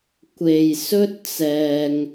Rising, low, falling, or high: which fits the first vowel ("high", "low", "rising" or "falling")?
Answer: low